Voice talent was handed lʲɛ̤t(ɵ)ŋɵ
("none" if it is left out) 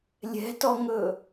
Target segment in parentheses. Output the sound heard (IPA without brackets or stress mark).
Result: ɔ